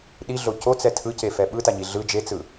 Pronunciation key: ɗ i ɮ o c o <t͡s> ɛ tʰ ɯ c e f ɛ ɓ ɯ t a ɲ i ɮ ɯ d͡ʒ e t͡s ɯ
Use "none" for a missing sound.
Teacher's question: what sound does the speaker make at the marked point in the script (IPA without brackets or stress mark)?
t͡s